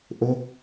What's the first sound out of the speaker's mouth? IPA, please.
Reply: ʔ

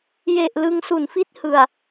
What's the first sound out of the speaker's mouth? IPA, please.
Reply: j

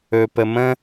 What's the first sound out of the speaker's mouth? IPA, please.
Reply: ɵ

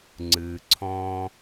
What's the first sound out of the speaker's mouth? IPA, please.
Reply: ŋ͡ǀ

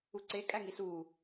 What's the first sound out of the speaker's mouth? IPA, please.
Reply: u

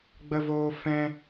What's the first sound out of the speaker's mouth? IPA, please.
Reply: ɡ͡b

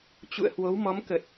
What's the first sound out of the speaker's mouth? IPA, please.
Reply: t͡ɕ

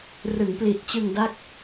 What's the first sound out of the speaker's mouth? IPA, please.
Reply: r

